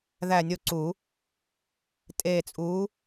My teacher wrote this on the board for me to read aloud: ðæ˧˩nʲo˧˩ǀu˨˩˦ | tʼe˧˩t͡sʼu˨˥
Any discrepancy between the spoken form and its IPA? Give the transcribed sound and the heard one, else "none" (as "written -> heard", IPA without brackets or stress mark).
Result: none